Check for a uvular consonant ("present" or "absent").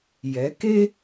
absent